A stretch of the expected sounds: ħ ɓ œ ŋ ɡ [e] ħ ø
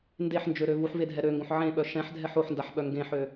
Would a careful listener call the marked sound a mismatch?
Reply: yes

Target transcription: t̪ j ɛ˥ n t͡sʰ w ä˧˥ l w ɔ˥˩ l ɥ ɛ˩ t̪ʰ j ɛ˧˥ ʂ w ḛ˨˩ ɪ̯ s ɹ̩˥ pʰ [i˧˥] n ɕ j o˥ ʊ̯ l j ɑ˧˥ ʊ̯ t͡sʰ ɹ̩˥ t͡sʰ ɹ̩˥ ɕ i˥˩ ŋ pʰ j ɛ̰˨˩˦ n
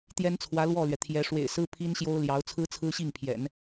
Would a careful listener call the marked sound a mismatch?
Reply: yes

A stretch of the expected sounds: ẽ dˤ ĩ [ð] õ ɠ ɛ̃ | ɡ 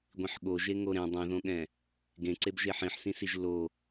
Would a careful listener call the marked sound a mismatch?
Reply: no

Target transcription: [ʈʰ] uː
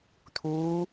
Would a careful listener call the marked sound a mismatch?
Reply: yes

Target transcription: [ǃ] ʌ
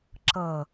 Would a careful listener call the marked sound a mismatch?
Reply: yes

